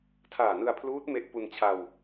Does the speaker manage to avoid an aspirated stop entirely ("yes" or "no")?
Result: no